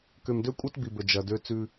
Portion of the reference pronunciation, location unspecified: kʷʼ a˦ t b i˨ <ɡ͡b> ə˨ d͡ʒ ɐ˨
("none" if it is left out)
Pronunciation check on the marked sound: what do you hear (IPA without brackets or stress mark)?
b